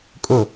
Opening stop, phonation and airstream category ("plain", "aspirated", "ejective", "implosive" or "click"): ejective